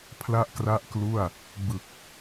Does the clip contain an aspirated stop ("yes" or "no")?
yes